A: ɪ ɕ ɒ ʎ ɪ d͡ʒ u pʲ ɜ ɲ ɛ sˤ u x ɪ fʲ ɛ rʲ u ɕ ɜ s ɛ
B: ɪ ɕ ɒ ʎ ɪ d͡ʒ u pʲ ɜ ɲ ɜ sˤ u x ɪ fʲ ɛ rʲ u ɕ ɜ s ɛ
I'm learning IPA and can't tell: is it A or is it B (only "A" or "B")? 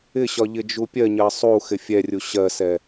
B